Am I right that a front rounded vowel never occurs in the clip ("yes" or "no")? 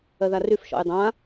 no